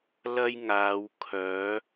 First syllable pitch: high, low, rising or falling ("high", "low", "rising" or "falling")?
high